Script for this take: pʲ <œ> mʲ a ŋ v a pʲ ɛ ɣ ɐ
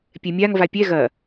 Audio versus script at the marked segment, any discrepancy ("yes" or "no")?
yes